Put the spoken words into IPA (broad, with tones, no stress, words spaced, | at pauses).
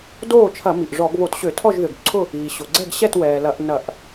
doː˥˨t͡ʃʰɐ˧˩˧ mi˩ʔʐɔ˧˩˧ɡβo˧˩˧tɕø˧˩˧ tʰɔ˥˨ʒðø˩ɡǀʰʊ˥˨ | iː˩ɕʊ˩ ɡ͡ǀɛ˥˨ɡɕɛ˥˨twɛː˩ lɐ˧˩˧ʔnɐ˧˩˧ʔ